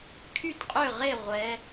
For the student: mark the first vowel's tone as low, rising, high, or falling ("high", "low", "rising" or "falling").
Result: falling